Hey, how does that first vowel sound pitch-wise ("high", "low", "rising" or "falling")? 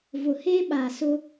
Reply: low